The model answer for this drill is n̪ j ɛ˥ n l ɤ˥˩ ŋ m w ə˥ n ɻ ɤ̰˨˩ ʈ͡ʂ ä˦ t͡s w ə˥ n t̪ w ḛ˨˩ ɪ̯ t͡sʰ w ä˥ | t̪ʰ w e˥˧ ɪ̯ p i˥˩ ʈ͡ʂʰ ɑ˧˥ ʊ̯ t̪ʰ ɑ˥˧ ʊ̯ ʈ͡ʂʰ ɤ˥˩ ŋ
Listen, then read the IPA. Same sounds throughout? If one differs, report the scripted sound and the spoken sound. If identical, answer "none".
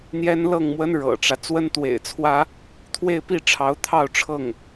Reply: none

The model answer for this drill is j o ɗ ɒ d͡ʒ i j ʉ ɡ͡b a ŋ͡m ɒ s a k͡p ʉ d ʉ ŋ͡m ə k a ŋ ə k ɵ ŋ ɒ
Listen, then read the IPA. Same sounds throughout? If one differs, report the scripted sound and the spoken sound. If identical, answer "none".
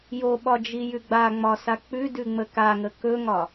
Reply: ɗ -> ɓ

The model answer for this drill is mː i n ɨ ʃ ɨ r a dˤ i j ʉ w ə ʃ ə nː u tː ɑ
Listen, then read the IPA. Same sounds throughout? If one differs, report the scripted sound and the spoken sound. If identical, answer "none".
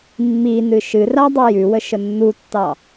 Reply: none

